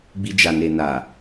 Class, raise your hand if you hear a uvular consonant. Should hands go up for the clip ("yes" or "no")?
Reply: no